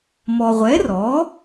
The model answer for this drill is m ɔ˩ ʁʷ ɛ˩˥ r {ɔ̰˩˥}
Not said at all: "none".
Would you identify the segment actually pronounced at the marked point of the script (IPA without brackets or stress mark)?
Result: ɔ˩˥